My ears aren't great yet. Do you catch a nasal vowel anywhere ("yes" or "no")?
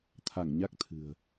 no